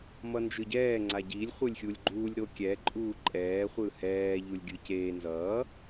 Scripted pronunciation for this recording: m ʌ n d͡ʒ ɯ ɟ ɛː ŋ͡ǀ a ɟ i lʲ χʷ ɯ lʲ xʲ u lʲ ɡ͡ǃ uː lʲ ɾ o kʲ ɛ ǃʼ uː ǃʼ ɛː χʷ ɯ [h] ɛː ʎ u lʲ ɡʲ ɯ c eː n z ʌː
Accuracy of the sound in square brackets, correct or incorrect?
correct